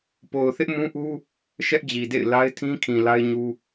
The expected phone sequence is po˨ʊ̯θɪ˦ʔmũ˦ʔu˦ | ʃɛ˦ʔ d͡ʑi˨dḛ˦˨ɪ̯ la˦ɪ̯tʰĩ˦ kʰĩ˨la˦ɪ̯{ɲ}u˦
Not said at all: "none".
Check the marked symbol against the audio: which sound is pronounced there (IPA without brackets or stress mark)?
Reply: ɲ